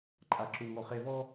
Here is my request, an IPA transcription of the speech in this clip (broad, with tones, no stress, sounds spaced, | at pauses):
ǃʼ a˨ ǁ u˨ ŋ ɔ˨ χ e˨ v ɔ˦